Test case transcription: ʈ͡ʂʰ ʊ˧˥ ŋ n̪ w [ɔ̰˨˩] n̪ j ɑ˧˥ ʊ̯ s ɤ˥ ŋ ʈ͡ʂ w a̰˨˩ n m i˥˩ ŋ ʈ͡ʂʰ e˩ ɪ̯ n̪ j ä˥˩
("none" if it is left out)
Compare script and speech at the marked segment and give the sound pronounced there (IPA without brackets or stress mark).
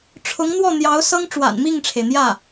ɔ˥˩